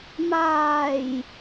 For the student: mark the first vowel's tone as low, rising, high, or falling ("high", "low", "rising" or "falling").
low